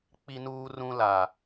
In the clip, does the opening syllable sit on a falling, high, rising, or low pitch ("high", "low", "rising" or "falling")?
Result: high